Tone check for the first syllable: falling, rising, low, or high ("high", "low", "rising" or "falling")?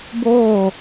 falling